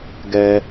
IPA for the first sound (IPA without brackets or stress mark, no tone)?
ɡ